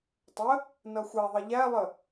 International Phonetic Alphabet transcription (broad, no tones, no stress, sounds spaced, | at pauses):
tˤ ə | n ʌ xʷ æ ðˤ ʌ ʎ æ lˠ ə